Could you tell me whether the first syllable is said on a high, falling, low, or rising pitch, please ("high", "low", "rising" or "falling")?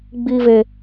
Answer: high